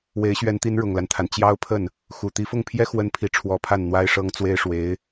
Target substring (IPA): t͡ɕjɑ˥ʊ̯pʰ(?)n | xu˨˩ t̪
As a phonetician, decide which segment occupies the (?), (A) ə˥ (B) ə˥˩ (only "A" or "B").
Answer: B